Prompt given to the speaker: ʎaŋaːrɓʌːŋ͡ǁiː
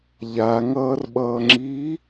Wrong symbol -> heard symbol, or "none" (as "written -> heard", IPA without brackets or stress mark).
aː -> ʌː